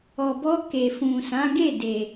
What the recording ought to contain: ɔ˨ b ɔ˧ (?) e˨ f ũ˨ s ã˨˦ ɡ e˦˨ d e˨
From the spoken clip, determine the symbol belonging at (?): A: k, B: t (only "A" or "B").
A